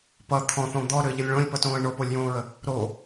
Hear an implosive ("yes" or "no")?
no